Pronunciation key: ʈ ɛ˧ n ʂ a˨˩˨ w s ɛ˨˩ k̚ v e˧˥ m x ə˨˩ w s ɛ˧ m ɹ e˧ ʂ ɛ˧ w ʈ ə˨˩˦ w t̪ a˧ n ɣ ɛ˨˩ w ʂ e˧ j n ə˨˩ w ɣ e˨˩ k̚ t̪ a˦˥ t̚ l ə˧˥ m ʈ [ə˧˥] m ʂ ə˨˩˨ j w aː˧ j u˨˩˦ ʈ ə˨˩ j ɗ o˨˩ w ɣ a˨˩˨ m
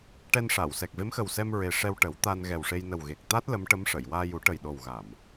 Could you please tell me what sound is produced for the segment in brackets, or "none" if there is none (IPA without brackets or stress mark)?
ə˧˥